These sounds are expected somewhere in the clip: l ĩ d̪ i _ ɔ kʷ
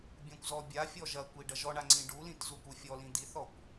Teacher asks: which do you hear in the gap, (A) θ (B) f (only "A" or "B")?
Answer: A